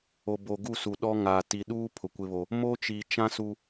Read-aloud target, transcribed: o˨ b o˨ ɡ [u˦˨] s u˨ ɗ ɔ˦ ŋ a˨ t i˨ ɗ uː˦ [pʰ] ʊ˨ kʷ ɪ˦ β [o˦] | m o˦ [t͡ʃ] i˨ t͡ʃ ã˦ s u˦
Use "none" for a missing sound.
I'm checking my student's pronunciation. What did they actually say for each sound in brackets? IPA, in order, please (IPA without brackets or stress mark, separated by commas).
u˦˨, pʰ, o˦, t͡ʃ